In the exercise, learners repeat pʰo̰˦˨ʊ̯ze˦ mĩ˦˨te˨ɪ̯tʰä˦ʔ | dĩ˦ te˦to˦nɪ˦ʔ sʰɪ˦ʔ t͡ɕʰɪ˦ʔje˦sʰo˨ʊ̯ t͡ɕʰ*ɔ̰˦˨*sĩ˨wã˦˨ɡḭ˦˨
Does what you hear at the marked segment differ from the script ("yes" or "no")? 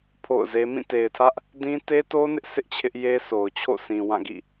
yes